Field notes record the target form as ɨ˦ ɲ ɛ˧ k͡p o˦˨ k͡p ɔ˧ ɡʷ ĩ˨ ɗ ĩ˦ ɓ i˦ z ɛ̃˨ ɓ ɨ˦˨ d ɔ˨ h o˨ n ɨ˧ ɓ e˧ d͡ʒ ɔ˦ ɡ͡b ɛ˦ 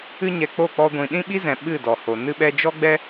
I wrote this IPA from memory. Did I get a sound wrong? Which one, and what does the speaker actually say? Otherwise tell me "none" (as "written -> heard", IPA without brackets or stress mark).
e˧ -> ɛ˧